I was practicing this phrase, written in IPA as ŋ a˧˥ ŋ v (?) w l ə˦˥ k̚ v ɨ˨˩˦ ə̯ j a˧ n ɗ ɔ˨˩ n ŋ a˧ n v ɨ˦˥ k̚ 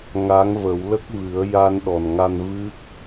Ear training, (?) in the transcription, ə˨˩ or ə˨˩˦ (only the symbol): ə˨˩˦